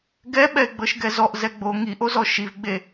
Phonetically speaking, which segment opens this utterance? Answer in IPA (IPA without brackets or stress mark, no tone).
ɡ